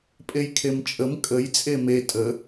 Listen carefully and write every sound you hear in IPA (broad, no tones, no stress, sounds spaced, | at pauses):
pʼ e j kʰ e m t͡ʃʼ ə m kʼ ə j t͡sʼ e m e tʼ ə